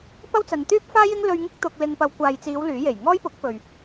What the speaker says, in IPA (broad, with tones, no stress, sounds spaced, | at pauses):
p ɐ˥ w t͡s ɐ˨˧ n t̪ yː˥ p̚ f aː˥ j ɪ˥ ŋ l ɵ˧ ɥ ŋ ɪ˥ k̚ t̪ ʊ˧ k̚ l ɪ˧ ŋ p ɐ˨˧ w kʷ aː˨ j t͡s iː˨˧ w l yː˨˥ j e˨˩ j ŋ ɔː˥ j p ʊ˨˥ k̚ p ɵ˨ ɥ